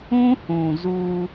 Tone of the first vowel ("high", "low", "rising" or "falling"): high